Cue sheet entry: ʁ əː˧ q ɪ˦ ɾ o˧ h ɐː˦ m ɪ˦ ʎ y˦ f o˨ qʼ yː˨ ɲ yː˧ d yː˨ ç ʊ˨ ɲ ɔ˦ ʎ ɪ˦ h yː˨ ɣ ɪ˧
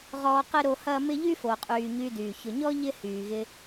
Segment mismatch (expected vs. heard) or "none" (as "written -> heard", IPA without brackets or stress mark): əː˧ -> ɔː˧